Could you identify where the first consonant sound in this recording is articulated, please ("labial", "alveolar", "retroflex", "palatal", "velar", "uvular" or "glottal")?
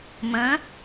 labial